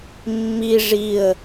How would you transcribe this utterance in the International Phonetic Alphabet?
mːi ʐiə̯

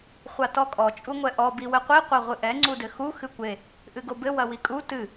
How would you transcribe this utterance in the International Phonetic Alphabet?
χʷatɔkʼɔ t͡ʃʼuŋʷɛʔɔ biwɘqʷi qʷaʁʷɨʔɛ ŋ͡ǀudɘxu xɨkʷe | ʔɨɡobɘ wɐwikʼu tɨ

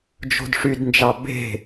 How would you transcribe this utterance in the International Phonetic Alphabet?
d͡ʒo̤dʂydnd͡ʒɑ be̤

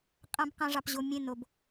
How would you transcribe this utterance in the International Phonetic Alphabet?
qʼã˦b qã˦ʐɑ˧pʑo˧ mʲẽ˦˨n o˧b

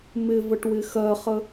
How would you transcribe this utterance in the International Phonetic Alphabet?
mɪvəʈ wɪxɜχə

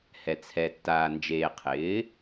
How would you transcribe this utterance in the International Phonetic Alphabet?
hɛ˨t͡sʰɛ˨tːaː˨ nd͡ʒeː˨qʰɪː˩˥

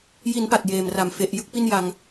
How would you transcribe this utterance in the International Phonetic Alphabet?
ji˩˦n pa˨˩t̚jeː˨˩mra˨˩m fe˨˩ʔ jɯ˥˩k̚pi˥˩n ja˧ŋ

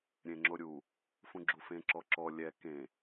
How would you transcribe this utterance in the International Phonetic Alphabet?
ɾʲẽŋ͡ǁoɾʲu | fũɡ͡ǁufẽ ǁɔǁɔ lʲɛ kẽ

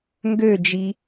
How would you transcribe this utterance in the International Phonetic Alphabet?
ŋɡød͡ʒi

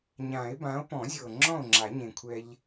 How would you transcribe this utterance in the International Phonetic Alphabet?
ɲã˨˩˦e̯bã˨˥o̯ pɔ̃˨˩˦zʲɤ˨˩ ŋ͡ǁɔ̃˥˨o̯ŋ͡ǁa˨˩˦ɲẽ˨˩kʷʰɛ˧ʎ

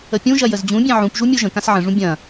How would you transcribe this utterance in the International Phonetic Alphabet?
əpʲũʒɐ jəzd͡ʑũbʲɛ̃ ʕũpʒu mʲoʒə̃kãs ʕə̃ʐũ bʲɐ̃

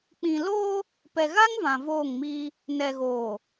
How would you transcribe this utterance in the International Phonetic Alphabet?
k͡pĩ˨loː˦ | pɛ˨ɣa˦ŋ vã˨voː˦˨ŋmiː˦ | nɛ˨ɣoː˨

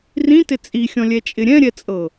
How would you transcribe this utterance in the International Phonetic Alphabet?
rĩtɪ t͡sʼixʲɔ̃lʲɛt͡ʃʼɪ ɾʲɛ̃ɾʲɛt͡sʼɤ

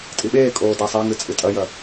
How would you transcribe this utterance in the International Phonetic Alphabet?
tʼiɓeːkʼoː dasˤaŋɨ t͡sʼɨtʼɐjɐ

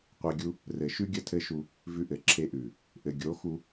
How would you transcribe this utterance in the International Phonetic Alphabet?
qʷe˧ɡʲu˦ | rɘ˨ʃʉ˦ ɡʲə˦tʰɘ˦ʃu˧ | vʉ˧ʔɘ˨ǁʰe˧ʔʉ˨ | ʔɘ˨ɡʲo˨˦xu˧

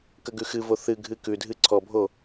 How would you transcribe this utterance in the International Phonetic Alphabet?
kəɡʉxɨvo θɨɡʱɨ kʉdʱɨ ǀʰɔbʱo

